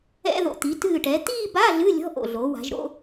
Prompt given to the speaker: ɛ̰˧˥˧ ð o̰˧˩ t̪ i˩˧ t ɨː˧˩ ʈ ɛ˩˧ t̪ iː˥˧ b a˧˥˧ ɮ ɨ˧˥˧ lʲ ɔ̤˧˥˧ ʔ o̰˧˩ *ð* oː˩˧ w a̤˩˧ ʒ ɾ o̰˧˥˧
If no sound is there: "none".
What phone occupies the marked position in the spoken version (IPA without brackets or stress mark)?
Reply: ɮ